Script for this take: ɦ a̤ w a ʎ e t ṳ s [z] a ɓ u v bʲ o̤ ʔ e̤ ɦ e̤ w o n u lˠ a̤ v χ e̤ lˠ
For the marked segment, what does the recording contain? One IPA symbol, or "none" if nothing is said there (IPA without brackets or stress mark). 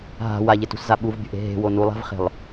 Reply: z